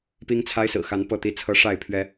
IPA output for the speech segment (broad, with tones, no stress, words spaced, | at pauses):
pi˦ŋt͡sʰa˦ɪ̯ sɹ̩˨˩xa˨˦n pɤ˥˨t̪i˥˨t͡sʰɤ˦ ʂa˥˨ɪ̯ pʰɥɛ˨˦